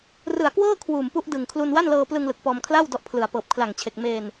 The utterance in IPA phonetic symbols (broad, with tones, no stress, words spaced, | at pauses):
rɯ˨˩a̯kwɤː˥˩ kʰwuː˨˩mpu˦˥ʔdɯ˨˩ŋkʰlu˧n wa˥˩nlɤː˧plɯ˧ŋ lɯ˨˩k̚pɔː˧m kʰla˥˩w dɔ˦˥ʔpʰlɯ˨˩a̯ pɤː˨˩p̚kʰla˨˩ŋt͡ɕʰe˨˩k̚ meː˧n